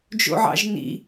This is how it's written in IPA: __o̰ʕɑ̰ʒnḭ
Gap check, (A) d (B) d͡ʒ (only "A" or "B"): B